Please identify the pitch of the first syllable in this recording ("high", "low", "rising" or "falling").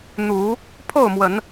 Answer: rising